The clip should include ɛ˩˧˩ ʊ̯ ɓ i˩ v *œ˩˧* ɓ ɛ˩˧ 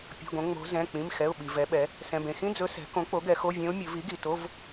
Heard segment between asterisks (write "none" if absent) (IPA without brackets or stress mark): ɛ˩˧